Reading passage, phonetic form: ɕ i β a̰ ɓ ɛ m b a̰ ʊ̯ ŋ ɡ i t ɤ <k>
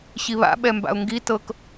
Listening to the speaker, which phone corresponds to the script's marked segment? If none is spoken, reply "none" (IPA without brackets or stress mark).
k